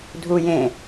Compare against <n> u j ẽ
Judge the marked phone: incorrect: dʱ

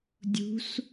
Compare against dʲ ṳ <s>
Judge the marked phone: correct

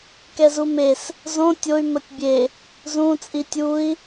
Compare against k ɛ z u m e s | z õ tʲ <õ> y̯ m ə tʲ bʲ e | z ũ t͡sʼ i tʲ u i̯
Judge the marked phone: incorrect: o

